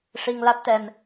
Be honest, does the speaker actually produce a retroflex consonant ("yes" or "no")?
yes